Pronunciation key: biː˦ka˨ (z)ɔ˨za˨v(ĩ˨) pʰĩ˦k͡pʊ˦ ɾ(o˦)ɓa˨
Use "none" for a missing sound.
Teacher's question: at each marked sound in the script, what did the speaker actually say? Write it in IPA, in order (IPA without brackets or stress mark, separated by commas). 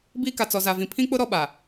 t͡s, ĩ˨, ɔ˦